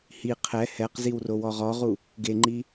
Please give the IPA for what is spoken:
h i qʰ ɛ h ɛ q z i w r o w ɔ ʁ ɔ ʁ u | ɡ e ŋ͡ǃ i

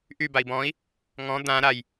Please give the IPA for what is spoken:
ʔ y b a i̯ b ɔ̃ i̯ | ŋ ɔ̃ d̪ ã ɾ a j

